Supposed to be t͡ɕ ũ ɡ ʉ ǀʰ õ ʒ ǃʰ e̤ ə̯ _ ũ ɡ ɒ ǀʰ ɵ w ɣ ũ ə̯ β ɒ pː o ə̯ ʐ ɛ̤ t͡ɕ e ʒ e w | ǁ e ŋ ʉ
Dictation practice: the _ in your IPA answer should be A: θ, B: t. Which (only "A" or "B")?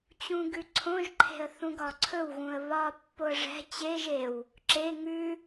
A